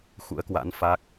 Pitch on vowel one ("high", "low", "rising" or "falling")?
rising